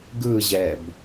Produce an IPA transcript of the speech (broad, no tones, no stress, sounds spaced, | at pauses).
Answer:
ɡ ɯ ʑ ɛ b